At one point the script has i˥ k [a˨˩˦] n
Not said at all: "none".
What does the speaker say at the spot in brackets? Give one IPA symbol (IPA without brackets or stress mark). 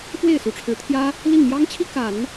a˨˩˦